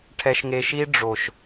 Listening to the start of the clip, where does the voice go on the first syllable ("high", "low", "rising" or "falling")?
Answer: low